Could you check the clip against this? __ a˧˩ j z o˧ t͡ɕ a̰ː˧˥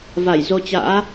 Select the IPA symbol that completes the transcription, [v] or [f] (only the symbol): v